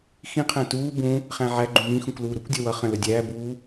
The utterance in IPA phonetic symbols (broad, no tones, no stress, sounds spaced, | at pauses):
x ĩ qʰ æ̃ t uː b ũ | χ æ̃ ʕ æ ɡ͡ǃ ũ m ĩ x ũ k l uː ɾ u kʷ dʲ ʌ w ʌ χ ə̃ l ə dʲ æː b uː